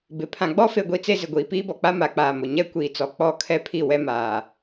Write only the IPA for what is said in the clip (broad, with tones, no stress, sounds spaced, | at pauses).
b ɪ˨ pʰ ã˨ ɡ͡b ɔ˦ f e˦ ɡʷ i˦ t͡s e˦ z ɪ˨ ɡʷ iː˨ p iː˦ b ɔ˨ k͡p a˦ m a˨ k͡p aː˨ m ʊ˨ ɲ ɛ˦ kʷ iː˨ t͡s ɔ˨ k͡p ɔ˦˨ kʰ ɛ˦ pʰ i˦˨ w ɛ˦ m aː˨